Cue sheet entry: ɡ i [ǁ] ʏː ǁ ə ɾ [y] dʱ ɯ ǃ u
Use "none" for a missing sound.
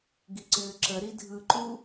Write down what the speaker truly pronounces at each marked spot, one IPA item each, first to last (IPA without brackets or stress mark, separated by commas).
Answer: ǀ, i